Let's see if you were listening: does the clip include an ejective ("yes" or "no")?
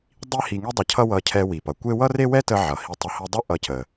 no